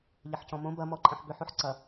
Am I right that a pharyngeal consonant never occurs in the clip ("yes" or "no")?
no